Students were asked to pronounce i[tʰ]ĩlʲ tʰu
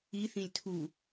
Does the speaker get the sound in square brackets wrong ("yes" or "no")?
yes